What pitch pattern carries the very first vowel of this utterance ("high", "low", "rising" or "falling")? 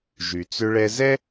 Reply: low